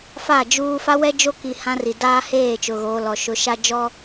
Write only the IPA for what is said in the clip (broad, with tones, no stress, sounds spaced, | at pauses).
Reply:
f a˦˨ d͡ʒ uː˦ f a˦ w ɛ˦ d͡ʒ o˦ k i˨ h ã˦ r i˨ d aː˦ h eː˦˨ t͡ʃ ʊ˨ ɣ oː˨ l ɔ˨ ʃ ʊ˨˦ ʃ a˦ d͡ʒ ɔ˦